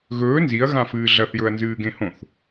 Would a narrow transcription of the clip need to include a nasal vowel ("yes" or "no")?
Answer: yes